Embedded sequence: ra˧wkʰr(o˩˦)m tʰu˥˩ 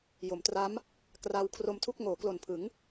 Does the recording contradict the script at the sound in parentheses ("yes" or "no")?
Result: yes